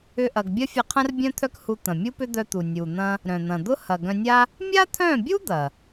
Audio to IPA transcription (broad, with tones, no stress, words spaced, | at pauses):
ʏ˦ʔɐ˧ɡ bʲɐ˦fʲɐ˧qʰɐ̃˦r bʲœ̃˦t̪ʰœ˦k hu˧ t̪ɐ̃˨mʲu˦pʏ˦ d̪œ˧t̪u˨ nʲu˨ n̪ɐ̃˦ | ɾœ̃˨n̪ɐ̃˨d̪ʊ˦ hɐ˨ ɡœ̃˧nʲa˦ | mʲa˦t̪ʰœ̃˦˨bʲu˦ d̪ɐ˨